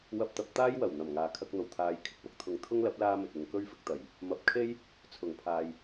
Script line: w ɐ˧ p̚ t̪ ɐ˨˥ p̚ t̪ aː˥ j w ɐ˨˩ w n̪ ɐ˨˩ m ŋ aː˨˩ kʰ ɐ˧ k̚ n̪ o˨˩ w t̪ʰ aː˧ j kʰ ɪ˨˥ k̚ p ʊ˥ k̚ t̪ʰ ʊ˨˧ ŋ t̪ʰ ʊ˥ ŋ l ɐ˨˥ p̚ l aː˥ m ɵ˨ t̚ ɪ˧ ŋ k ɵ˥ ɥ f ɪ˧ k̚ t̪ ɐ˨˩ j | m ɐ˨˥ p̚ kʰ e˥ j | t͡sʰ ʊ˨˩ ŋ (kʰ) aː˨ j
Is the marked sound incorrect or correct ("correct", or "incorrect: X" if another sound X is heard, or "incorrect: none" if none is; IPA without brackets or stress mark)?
incorrect: pʰ